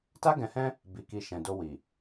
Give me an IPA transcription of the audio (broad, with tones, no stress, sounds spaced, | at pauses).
t a˦ ɡ ɛ̃˧ h ɛ̃˦ | b i˨ k i˨ ʃ ɛ̃˨ d o˧ w i˨